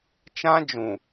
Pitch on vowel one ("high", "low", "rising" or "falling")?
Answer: high